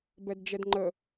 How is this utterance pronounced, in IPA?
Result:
b ɛ d d͡ʒ ɛ d ŋ͡ǃ ə

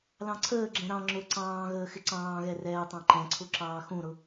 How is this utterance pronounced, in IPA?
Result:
l ɑ̃ ǀʰ əː ɡ͡ǁ ɛ̃ ɾ ɑ̃ ŋ͡ǁ ʊ ǀ ɑ̃ː ɣ əː x ɪ ǀ ɑ̃ː ɣ ɛ r ɛː tˤ ɑ̃ ǃ ɛ̃ ǀʰ ʊ ǁ ɑː x ũ ɾ ʊ

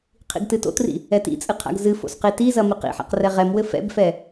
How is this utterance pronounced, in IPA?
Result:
qʰ ḭ ɡ t ɨ t o̰ t r ḭ | ɛ t ḭ t͡sʼ ɨ qʰ a̰ ɡ z ɨ f o̰ s q i t i z ɐ m i q ḭ ħ a̰ q r ɛ ʁ ɛ m w ɘ f ɛ̰ b f ɛ

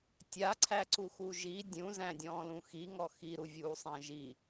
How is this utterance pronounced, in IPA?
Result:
tʲ a ǀʰ æ ǀ u x u ʒ i dʲ ũ z æ̃ dʲ ɔ̃ː l ũ x i ŋ ɔ x i ɾ u vʲ uː sˤ æ̃ ʒ i

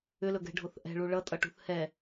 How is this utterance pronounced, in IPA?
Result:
ʏ l ɵ ɡ ɛ̤ ɖʱ o θ ʔ ɛ̤ ɭ u ɭ ʌ tʼ ʌ ʈ ṳ θ h ɛ

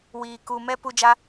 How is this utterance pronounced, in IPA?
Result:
w iː˨ k u˨ m ɛ˦ p u˧ d͡ʒ a˦

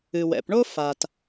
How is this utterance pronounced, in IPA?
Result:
ɨ˩ w ɛ̰˩ p ɳ o˥ f a˩ t

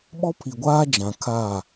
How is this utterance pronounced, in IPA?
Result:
ɓ ɔ˦ pʰ i˨ ɡʷ aː˦ d͡ʒ ã˨ kʰ a˦˨

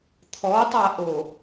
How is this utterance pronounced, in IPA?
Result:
t̪ʰ ɔ tˤ a ʔ o

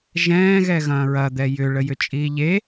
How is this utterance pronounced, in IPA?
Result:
ʒ ɛ̃ː ɣ ɛ ɣ ɐ̃ː ɹ ɐ d̪ ɛ j ʏ ɭ ə j ʏ t͡ʃʼ iː ʎ e

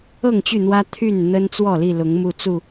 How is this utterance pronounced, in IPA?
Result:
ɤ˥˨ ŋ t͡ɕ y˥˨ n̪ w ä˦ t̪ʰ y˥˨ n n̪ ə˦ n t͡s w ɔ˥˨ l i˥˨ l ʊ˨˦ ŋ m u˦ t͡s u˥˨

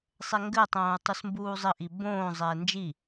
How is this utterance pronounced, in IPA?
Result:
sˤ ɛ ŋ ɡ ɘ tˤ õː u̯ tˤ u s m b uː zˤ ɘ ʔ i b õː zˤ ɛː n d͡ʒ i

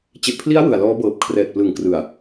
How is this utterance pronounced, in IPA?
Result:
t͡ɕ e˨˩ ʔ pʰ l i˦˥ a̯ w ɯ˨˩ a̯ l ɔː˦˥ b ɤː˨˩ p̚ kʰ r ɛː˨˩ t̚ p l ɯ˨˩ ŋ k r ɯ˨˩ a̯

